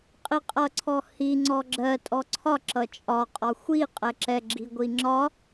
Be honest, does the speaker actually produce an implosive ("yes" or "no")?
no